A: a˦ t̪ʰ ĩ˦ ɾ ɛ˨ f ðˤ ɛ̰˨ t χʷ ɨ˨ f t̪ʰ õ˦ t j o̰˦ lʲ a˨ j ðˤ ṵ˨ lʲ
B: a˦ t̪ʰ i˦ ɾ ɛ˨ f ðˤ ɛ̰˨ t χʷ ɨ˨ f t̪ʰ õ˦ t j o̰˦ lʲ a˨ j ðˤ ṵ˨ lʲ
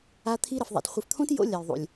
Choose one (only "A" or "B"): B